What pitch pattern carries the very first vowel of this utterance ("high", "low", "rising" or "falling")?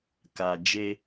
low